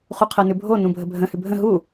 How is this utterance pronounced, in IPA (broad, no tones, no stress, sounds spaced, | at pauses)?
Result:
χ u qʰ ɜ n ʉ bʱ o n ũ bʱ ə bʱ ə̃ h ʉ bʱ ə̃ ɦ u